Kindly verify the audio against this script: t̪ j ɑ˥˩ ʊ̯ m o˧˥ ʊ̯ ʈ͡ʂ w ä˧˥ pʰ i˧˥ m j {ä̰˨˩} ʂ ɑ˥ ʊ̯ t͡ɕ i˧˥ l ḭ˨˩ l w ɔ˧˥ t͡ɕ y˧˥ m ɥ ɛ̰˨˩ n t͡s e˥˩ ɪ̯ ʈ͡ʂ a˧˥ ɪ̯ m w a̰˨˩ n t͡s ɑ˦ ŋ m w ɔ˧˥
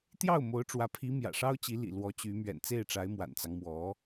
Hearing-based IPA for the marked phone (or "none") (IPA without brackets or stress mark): ä̰˨˩